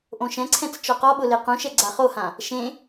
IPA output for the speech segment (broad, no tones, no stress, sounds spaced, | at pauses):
ʔ õ ʃ ɛ̃ ǀʰ ɛ̃ t͡s t͡ʃ ɔ q ɔ ɓ ʊ l e q ũ ʃ ɛ ɡ͡ǀ a χ o h ã | ʃ ẽ